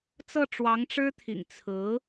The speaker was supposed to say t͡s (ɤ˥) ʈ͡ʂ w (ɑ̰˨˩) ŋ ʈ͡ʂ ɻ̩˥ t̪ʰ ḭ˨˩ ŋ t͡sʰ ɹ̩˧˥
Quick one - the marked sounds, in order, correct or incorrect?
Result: incorrect: ɤ˥˩, incorrect: ɑ˧˥

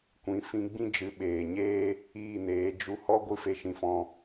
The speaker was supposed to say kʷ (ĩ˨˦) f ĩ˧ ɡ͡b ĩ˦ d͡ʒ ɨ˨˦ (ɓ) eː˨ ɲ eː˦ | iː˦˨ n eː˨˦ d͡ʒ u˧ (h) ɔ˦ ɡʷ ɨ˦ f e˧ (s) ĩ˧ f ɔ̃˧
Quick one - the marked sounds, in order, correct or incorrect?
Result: correct, correct, correct, incorrect: ʃ

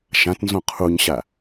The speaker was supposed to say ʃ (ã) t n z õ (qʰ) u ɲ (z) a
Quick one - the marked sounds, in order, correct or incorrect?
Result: correct, correct, incorrect: ɕ

